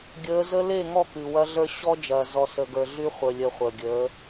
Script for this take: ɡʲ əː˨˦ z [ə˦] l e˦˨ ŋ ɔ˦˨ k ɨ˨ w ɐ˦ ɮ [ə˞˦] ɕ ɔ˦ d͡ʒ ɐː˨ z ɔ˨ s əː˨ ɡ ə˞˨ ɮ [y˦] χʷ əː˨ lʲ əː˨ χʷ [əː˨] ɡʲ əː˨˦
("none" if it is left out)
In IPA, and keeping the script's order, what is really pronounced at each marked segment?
ə˦, ə˞˦, y˦, əː˨

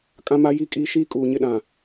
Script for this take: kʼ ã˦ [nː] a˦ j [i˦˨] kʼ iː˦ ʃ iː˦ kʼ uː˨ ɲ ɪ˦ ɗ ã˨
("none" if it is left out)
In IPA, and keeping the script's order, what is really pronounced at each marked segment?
m, i˦˨

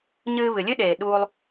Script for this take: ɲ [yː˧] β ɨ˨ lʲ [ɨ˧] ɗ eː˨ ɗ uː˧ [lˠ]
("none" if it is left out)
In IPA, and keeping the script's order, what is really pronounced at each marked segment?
ɨː˧, ɨ˦, lˠ

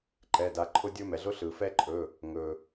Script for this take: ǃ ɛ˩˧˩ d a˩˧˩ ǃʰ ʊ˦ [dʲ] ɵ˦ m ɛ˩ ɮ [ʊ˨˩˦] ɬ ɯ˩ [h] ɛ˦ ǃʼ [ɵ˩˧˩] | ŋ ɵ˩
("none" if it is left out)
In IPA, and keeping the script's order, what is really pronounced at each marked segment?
dʲ, ʊ˦, f, ɵ˩˧˩

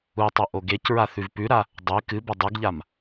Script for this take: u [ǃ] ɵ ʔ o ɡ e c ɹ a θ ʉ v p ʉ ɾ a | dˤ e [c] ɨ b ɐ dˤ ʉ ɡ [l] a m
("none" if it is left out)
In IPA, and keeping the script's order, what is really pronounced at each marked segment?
tˤ, k, ʎ

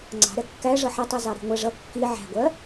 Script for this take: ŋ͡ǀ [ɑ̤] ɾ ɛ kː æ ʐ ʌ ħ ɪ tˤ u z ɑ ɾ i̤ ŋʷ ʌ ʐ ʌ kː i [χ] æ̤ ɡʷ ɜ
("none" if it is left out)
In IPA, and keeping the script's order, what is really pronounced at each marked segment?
ɑ̤, ʕ

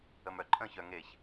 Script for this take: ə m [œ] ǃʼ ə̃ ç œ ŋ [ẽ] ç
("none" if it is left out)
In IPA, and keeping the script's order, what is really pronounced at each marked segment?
œ, e

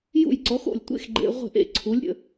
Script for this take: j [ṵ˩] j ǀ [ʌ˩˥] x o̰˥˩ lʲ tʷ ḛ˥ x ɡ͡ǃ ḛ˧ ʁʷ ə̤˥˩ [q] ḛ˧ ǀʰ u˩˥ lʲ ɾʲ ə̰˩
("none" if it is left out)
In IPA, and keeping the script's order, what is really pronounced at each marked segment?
ṵ˥˩, ɔ˩˥, ʔ

